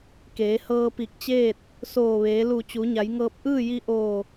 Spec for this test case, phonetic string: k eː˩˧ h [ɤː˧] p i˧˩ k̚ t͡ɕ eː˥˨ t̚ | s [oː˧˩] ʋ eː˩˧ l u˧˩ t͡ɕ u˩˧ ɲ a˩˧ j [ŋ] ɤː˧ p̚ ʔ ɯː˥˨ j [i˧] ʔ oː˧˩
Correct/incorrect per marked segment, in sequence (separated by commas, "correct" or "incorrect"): correct, correct, correct, correct